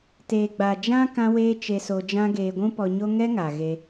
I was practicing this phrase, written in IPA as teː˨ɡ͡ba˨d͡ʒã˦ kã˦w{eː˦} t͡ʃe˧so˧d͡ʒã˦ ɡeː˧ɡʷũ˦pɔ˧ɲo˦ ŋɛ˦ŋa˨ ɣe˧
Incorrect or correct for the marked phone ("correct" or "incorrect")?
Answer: correct